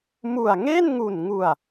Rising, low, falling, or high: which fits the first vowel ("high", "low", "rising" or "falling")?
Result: low